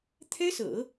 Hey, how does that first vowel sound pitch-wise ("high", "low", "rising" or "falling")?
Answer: high